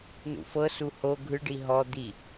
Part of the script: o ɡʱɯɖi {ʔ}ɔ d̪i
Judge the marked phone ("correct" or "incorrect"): incorrect